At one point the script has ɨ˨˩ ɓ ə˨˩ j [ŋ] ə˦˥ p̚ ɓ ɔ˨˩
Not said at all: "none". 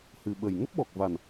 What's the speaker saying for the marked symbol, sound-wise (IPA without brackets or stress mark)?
ŋ